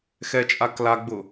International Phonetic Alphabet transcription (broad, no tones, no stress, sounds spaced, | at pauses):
x ɛ t͡ʃʼ a k l a ɡ͡b ʊ